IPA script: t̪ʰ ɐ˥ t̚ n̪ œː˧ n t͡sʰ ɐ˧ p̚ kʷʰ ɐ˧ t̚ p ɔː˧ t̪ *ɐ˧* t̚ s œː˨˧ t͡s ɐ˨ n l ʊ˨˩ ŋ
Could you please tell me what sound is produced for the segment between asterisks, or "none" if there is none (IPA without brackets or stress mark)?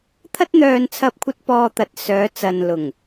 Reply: ɐ˨